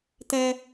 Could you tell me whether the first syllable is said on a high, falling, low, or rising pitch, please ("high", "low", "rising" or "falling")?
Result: high